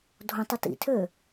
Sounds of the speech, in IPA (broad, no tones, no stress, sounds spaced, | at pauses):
dʱ õ tˤ o t ḭ tʰ ø